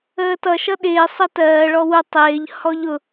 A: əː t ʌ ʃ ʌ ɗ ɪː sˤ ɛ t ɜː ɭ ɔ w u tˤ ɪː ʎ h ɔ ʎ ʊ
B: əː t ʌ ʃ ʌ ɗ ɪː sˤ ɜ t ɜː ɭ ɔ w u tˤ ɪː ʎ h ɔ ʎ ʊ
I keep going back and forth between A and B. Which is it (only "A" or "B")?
B